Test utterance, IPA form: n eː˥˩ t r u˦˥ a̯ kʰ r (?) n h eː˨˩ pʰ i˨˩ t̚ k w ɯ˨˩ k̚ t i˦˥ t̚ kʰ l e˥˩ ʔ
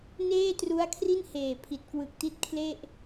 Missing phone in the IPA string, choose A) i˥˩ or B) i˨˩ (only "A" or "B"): A